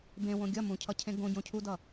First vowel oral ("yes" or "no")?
no